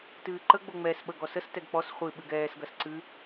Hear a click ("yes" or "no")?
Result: yes